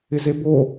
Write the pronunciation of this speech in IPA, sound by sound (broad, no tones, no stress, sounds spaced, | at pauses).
ɪ z e b o